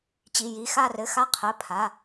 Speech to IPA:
t͡ɕ i˩˧˩ j i˩˧˩ x a˧˩ r ɘ˩˧˩ x a˧˩ qʰ ɘ˩˧˩ pʰ a˩˧˩

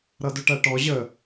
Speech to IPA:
ɾ ʌ d ʊ ʈ æ ʈ ɔ ʑ ə

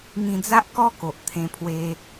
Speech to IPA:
ŋ ĩ˧ d͡z a˦ ʔ k ɔ˦ k o˨ ʔ t̪ʰ ẽ˧ pʰ w e˧

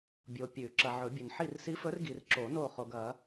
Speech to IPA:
bʲ o˨ pʲ ʉ˨˩˦ ǁ ɐ˨ ʕ ɵ˨˩˦ bʲ ɵ˨ n ħ i˦˨ r s i˧˥ f ɵ˧˥ r ɡ i˨ r ǁ o˨˩˦ n o˦˨ χ o˨ ɡ ɐ˨˩˦

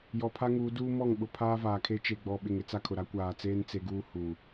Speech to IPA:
j ɔ˨ pʰ a˦ ŋ uː˨˦ d uː˦ m ɔ˦˨ ŋ ɓ ʊ˨ pʰ aː˦ v aː˨ kʰ e˦ t͡ʃ e˨ ɡ͡b ɔ˨ ɓ ɪ˨ ŋ ɪ˦ t͡s a˦ kʰ ʊ˨ ɾ a˦ kʷ aː˨ t͡s eː˦ n t͡s e˦ ɡ uː˦ h uː˨

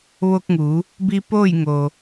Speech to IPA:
ʋ o˧ k̚ ŋ u˩˧ | b i˧ p oː˥˨ j ŋ o˩

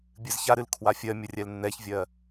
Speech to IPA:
bʲ ɨ z ç a ɾ ɨ l kʰ w a fʲ ɜ mʲ ə rʲ ɛ l nː ɛ ç vʲ ɜ

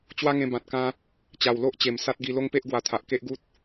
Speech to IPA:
t͡ɕ w a˦ ŋ ẽ˧ b ã˨ t̚ k ã˧ | t͡ɕ a˨˩ w l o˦ ʔ t͡ɕ e˨˩ m s a˦ t̚ ɡ i˧ l o˦ ŋ p e˦ ʔ ɡ w a˧ t̪ʰ a˨ ʔ k e˦ ʔ ɡ u˦ t̚

